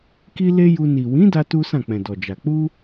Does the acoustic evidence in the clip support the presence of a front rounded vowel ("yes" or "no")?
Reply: no